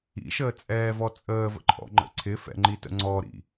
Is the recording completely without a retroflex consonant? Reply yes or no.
yes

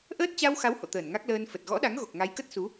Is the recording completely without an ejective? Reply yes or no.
yes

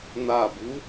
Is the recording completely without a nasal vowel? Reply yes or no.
yes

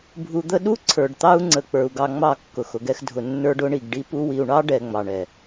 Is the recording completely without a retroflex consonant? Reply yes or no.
no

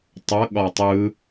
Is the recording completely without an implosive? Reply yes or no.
no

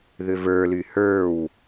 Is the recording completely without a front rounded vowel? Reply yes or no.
no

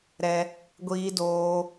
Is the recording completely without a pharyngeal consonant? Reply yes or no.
yes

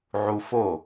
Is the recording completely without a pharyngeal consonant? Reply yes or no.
no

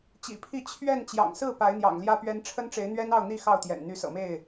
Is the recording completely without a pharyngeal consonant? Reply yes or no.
yes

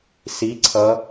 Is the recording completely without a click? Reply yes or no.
no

